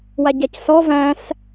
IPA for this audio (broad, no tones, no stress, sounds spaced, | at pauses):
w a ɟ a c s ɔ v æ̃ s